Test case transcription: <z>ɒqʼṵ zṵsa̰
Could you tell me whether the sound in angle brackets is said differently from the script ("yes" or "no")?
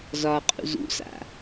no